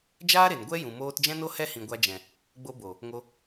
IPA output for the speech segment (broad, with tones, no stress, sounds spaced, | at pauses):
d͡ʒ aː˦ ɾ e˨ n ɡʷ ɛ˦ j ũ˨ m oː˧ t d͡ʒ ɛ̃˦ n o˦ h ɛ˦ h ĩ˨ ɡʷ a˧ d͡ʒ ɛ̃˨ | ɡ͡b o˧ b o˨ | ŋ o˧